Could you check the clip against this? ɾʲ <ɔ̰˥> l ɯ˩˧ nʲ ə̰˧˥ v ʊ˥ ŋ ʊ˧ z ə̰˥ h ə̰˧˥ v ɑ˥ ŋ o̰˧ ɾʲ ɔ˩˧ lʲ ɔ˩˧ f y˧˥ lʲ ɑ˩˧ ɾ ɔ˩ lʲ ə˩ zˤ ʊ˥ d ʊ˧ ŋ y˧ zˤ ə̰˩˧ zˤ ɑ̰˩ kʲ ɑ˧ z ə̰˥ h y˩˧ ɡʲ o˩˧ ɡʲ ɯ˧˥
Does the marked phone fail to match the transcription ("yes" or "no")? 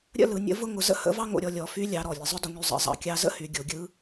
yes